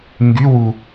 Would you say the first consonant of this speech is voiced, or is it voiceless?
voiced